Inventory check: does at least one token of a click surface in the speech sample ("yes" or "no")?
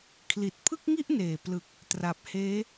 no